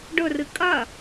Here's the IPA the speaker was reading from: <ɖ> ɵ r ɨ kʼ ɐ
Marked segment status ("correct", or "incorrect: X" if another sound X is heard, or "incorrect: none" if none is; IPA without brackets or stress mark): correct